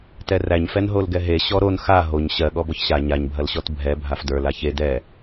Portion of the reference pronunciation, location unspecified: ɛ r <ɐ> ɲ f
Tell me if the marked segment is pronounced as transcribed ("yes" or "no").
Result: no